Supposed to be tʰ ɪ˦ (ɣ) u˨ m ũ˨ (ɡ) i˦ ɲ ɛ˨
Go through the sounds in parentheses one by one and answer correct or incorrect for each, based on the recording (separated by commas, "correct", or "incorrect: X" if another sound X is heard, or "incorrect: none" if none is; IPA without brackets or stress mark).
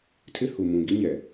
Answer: incorrect: h, correct